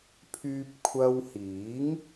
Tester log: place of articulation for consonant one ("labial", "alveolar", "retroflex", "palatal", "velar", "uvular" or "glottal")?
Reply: labial